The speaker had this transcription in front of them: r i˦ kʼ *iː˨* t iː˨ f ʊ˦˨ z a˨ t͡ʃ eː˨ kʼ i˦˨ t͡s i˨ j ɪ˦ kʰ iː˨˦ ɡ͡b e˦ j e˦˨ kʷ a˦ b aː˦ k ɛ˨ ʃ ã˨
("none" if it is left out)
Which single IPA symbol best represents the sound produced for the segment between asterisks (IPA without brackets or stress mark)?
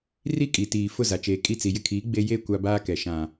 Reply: i˨